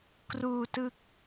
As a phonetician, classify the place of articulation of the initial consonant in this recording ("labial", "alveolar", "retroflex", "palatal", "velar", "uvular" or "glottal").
velar